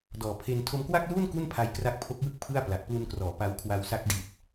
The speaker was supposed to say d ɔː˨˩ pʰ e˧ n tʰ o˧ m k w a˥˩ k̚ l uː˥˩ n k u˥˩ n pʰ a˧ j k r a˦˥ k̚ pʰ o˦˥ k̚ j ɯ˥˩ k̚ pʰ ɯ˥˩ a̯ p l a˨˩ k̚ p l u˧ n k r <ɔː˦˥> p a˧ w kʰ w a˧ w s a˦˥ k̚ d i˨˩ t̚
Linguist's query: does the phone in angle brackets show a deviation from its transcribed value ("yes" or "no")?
yes